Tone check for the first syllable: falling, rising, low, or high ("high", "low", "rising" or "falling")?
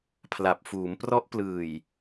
low